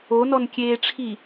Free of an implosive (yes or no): yes